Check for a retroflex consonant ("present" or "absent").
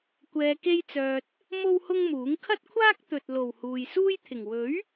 absent